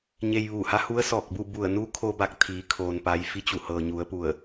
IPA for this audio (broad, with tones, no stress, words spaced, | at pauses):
ɲe˧jʋuː˧˩ha˧˥hu˧˥ə̯ sɔː˧˩k̚bu˥˨ bu˧˩ə̯nu˧˥ kʰo˧ ba˧k̚t̪ʰiː˩˧kʰoː˩n pa˩˧jfi˧t͡ɕu˧˩ hɤː˩ɲu˩˧ə̯pu˧˩ə̯